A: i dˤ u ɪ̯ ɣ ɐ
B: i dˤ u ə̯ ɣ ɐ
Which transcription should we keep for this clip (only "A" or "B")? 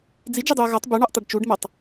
B